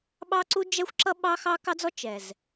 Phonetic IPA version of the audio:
ɓ ɑ˦ ǀ u˦ d͡ʒ ɛ˦ xʷ ǁ ʌ˦ ɓ ɑ˦ x ɑ˦ k ɑ˦ d͡z ɔ˦ t͡ʃ ɛ˨ z

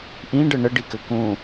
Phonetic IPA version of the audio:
ʔ ĩ ɖ ə ɳ ə ɖ i k ɘ k ũ

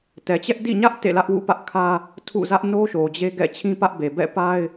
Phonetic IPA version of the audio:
t ɛ˨ t͡ɕ ɛ˦ ʔ d ḭ˦˨ ɲ ä˦ ʔ t ḛ˦˨ l ä˦ ʔ w ṵ˦˨ p ä˦ ʔ kʰ ä˦ | tʰ ṵ˦˨ z ä˦ ʔ n o˦ ʃ o˨ d͡ʑ e˦ ɡ ɛ̰˦˨ t͡ɕʰ ĩ˦ p ä˦ ʔ b e˨ b ɛ̰˦˨ p a˦ ɪ̯

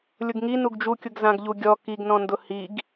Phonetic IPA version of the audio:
lʲ ʊ ɡ ŋ i n u ɡ d͡ʒ u kʲ ʊ ɡ z ã ɡ ʎ u ɡʲ ɔ k i ɡ n ɔ̃ n d ʊ h i ɡ

